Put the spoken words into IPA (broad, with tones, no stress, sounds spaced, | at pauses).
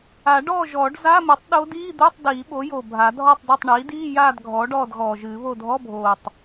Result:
a˨˩˦ ɖ ɔː˥˨ ʒ ɔː˨˩˦ ɖ z a˧˥˧ m ɨ˩˥ tˤ ɗ o˧˥ d iː˧˥˧ d̪ o˧˥˧ tˤ d iː˨˩˦ ɓ o˩˥ j o˨˩ bʱ a˨˩˦ dʱ ɔ˥˨ tˤ d e˥˨ tˤ ɳ iː˩˥ d iː˧˥˧ j aː˥˨ d ɡʱ ɔː˩˥ ɖ ɔː˥˨ d ɣ ɔː˨˩ ʒ ɨː˨˩˦ β o˥˨ dʱ ɔ˧˥˧ bʱ oː˨˩ tˤ